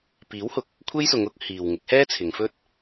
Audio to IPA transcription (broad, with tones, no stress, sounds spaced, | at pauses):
p iː˨˥ w h ʊ˨ k̚ | kʷʰ e˥ j s ʊ˨˧ ŋ ʊ˨˥ k̚ h iː˨ w ŋ ɪ˨˥ k̚ h ɛː˥ t͡sʰ ɪ˨˧ ŋ f ɵ˥ t̚